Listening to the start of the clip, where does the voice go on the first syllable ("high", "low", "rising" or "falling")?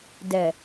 low